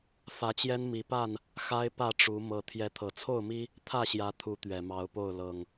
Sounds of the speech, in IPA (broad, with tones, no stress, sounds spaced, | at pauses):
f ä˨˦ t͡ɕ j ɛ˦ n m i˨˦ p a˥˨ n | x a˦ ɪ̯ p ä˥˨ ʈ͡ʂ u˨˦ m ɤ˨˦ t̪ʰ j ɛ˨˦ t̪ʰ ɤ˨˩ t͡sʰ o˥˨ ʊ̯ m i˦ | t̪ʰ ä˥˨ ɕ j ä˨˦ t̪ʰ u˨˦ t̪ ɥ ɛ˨˩ m ɑ˨˦ ʊ̯ p o˥˨ ʊ̯ l ɤ˨˩ ŋ